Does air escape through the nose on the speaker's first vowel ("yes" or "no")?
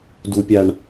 no